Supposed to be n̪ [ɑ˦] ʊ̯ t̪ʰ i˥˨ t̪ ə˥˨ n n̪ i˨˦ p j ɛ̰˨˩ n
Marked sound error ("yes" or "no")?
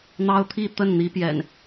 no